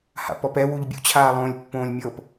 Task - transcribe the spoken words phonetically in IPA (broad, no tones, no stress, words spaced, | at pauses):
ha̰pɔpɛ wuʎbʲṵt͡ɕʰaːlˠõːlʲ pːõːlʲmʲɤp